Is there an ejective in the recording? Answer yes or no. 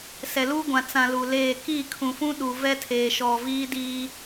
no